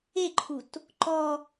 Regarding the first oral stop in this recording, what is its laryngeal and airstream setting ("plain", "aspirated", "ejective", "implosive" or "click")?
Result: click